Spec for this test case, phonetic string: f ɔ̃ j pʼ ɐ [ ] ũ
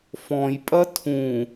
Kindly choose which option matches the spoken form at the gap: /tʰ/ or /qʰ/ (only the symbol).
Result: tʰ